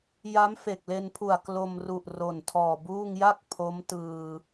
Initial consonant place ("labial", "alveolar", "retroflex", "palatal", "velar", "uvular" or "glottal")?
palatal